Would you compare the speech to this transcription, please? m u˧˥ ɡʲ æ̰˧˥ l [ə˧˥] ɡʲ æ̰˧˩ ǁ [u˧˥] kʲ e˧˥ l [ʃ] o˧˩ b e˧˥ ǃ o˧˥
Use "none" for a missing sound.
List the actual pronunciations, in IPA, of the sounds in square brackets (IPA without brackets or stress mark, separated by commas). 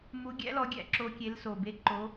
ɔ˧˥, o˧˥, s